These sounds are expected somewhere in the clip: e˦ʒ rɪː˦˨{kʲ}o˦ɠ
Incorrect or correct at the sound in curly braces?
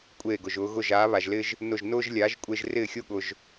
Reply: incorrect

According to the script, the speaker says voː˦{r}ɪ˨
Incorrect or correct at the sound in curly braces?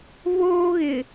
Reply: incorrect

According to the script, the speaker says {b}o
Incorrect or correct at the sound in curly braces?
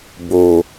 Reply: correct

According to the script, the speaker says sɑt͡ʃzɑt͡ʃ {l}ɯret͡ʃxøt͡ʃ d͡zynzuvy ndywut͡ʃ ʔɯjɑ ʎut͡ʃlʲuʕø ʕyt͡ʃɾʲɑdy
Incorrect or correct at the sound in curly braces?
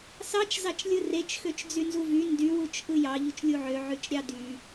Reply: incorrect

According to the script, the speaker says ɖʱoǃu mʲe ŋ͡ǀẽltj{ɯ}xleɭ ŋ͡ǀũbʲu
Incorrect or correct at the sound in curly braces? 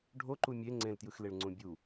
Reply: correct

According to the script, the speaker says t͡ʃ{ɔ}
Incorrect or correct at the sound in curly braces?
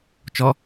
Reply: correct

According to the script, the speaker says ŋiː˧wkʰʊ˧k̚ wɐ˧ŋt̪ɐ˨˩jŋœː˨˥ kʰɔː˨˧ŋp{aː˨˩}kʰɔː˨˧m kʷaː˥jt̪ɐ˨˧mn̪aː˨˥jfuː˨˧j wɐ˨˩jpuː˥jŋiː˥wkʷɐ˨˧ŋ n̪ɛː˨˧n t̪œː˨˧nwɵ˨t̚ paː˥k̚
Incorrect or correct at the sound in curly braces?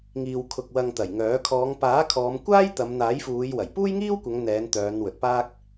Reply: incorrect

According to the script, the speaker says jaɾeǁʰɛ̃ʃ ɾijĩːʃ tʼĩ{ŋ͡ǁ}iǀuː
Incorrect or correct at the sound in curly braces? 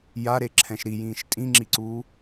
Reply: correct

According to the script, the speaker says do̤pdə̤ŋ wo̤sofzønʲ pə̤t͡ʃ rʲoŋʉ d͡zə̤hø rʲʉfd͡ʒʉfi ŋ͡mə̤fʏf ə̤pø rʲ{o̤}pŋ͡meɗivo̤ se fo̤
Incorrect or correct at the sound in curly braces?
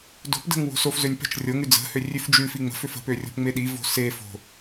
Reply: correct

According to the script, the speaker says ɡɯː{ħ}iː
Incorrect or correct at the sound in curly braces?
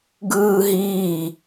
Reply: incorrect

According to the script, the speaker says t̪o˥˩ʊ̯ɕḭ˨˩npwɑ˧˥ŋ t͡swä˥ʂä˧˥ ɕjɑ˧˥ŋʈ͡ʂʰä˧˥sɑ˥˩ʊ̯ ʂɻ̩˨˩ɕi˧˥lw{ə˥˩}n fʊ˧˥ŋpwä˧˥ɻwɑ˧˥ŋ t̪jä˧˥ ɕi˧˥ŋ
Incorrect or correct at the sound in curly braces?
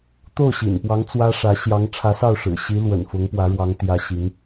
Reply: incorrect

